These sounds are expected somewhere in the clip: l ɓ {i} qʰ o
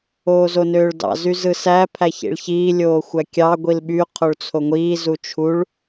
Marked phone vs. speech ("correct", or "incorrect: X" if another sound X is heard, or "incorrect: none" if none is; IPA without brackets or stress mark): incorrect: y